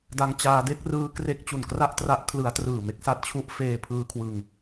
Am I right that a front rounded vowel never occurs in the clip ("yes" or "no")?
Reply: yes